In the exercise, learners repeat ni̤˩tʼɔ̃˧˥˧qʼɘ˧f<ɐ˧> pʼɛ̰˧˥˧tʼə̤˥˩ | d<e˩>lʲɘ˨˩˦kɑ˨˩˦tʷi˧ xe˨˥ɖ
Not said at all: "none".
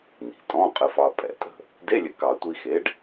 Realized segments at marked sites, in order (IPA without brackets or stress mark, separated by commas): ɑ˧, e˧˥˧